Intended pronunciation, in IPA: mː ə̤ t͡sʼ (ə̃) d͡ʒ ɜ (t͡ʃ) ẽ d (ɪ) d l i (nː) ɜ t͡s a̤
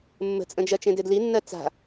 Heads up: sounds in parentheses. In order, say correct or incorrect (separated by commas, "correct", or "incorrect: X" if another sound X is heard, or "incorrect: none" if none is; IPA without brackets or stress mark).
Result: correct, correct, correct, correct